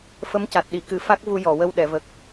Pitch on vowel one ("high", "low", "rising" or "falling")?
rising